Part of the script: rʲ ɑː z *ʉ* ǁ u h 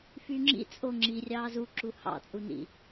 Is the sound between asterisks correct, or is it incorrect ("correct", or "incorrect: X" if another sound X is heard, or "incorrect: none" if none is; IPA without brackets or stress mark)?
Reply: incorrect: u